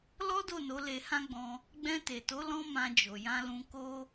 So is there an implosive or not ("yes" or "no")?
no